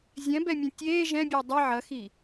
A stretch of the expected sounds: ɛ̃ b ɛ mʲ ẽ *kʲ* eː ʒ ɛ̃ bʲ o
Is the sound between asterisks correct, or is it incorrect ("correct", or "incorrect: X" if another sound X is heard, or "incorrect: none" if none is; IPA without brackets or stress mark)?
incorrect: tʲ